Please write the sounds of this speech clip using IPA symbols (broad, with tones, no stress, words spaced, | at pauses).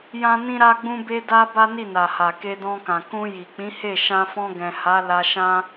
jã˦nĩ˦ ɾa˦ɡ͡bũ˦be˦da˦ ba˦ni˦˨na˨ha˨ ke˧dɔ̃˧kã˨ kũ˧ ji˨ k͡pĩ˨˦ he˦˨ ʃã˧fɔ̃˧ɡɛ̃˨ ha˨˦la˧ ʃã˦